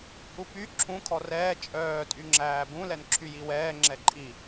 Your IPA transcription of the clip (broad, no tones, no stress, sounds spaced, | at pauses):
h u p y ǁʰ ũ kʰ ɔ r ɛː t͡ʃʼ œː tʼ y ŋ͡ǁ æː b ũ l ɛ n ǁʰ y j i w ɛː ŋ͡ǁ ɛ ǃʼ i